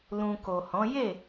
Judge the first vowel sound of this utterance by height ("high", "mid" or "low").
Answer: high